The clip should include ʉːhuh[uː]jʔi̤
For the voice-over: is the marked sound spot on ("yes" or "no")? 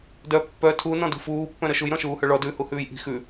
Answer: no